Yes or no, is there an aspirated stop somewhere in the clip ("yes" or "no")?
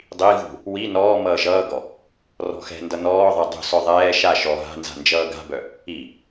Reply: no